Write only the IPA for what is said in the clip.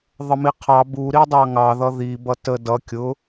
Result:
ðˤ ə m i qʰ ɑ b u ɾ i dˤ ɑ ŋ ɑ ð ʌ ð i b ʌ t ə d ʌ kʲ ʊ

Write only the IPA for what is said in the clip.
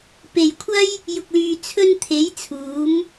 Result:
p e˨ j kʷʰ ɐ˥ j | j ʊ˧ k̚ l yː˧ t͡sʰ ɵ˧ n t̪ʰ e˨˧ j t͡sʰ uː˨˧ m

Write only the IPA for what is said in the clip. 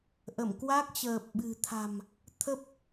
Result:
ʔ ə˧˩ m k w a˦˥ k̚ t͡ɕ əː˨˩ p̚ ɓ ɨ̤˨˩ t̪ʰ a̤˨˩ m | t̪ʰ ə˦˥ p̚

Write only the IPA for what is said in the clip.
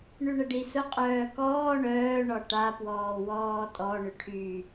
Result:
ɳ y ɳ ə ɖ i s ʊ qʼ œː k ɔː ɳ œː ɳ ɔ ʈ a p w ɔː w ɔː tʼ ɔ ɳ ʏ ʈʰ y

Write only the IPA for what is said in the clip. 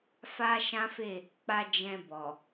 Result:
f a˦ ʃ ã˦ f e˦˨ | k͡p a˦ d͡ʒ ɛ̃˧ b ɔ˨

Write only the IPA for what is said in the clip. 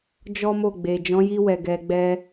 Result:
d͡ʒ ɔ˦ m o˦˨ ɡ͡b e˨ d͡ʒ ɔ̃˨˦ j i˧ w ɛ˨ ɡ ɛ˧ ɡ͡b ɛ˦

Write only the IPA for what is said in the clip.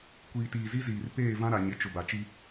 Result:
kʷ iː˨ t iː˨ z i˦ z iː˨ r p eː˦˨ v ã˦ ɾ a˨ ɲ ɪ˨˦ t͡ʃ ʊ˨ b a˨ t͡ʃ i˦

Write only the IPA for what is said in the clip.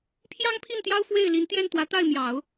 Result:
pʰ j ɑ˥ ŋ pʰ i˥˩ n t̪ j ɑ˥ ʊ̯ f w e˥˩ ɪ̯ l i˧˥ n t̪ j ɛ˥˩ n t̪ w ä˧˥ t̪ a˥˩ ɪ̯ m j ɑ˨˩˦ ʊ̯

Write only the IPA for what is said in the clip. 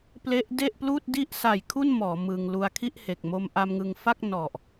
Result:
p l e˦˥ ʔ d e˥˩ ʔ p l uː˥˩ t̚ d i˥˩ ʔ s a˨˩ j kʰ u˥˩ n m ɔː˩˦ m ɯ˧ ŋ l u˧ a̯ kʰ i˥˩ ʔ h e˨˩ k̚ m o˧ m ʔ a˧ m ŋ ɯ˧ ŋ f a˥˩ k̚ n ɔ˨˩ ʔ

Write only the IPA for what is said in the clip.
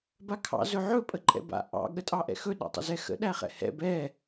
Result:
b a kʰ ɑ̰ z ɵ ʕ ɵ pʼ ə ǃʼ ɛ̰ b a̰ ʔ ɑ̰ ɠ ə tʼ ɑ ʔ ɛ̰ x ɵ ɗ ɑ̰ tˤ ə̰ z ɛ x ə̰ ɗ æ χ ɛ̰ h ɛ̰ b ɛ

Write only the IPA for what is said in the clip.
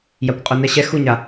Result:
j a kʷ qʼ o n ɛ ɕ ɛ x u ɲ a

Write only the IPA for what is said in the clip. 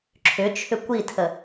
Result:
ǁʰ ʏ t͡ʃʰ ʏ kʷ i tʰ ə

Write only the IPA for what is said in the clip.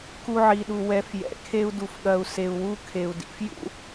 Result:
k u˧ ʕ i˨ ɗ u˨ w ɛ˨˦ f j ɛ̰˨ kʰ e˦ u̯ d u˧ f ɠ ɐ˧ u̯ s e˧ u̯ w u˦ kʰ e˨ u̯ d ḭ˨ f j ṵ˦

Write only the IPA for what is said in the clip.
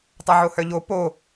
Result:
tˤ a ʕ o h œ ʎ o p o

